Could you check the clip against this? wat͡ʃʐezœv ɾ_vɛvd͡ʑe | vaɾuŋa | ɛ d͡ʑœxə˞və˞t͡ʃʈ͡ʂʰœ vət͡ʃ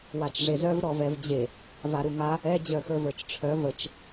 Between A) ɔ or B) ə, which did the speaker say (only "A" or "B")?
A